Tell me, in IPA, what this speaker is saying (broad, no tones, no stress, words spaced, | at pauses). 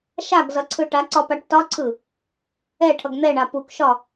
ʃaɡzʌ ǀʰɯʈaǀɒ paʈtɒǀʰɯ | ɛ ʈʰʌɡn̪ɛɳa pukʃɒ